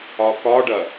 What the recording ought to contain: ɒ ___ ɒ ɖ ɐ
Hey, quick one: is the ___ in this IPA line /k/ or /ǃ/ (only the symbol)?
k